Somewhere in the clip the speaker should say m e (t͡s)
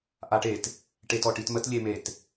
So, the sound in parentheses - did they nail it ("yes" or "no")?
no